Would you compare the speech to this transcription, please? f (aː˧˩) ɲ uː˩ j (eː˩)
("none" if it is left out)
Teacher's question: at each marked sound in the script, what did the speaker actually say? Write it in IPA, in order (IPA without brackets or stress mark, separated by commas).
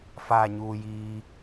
aː˧˩, iː˩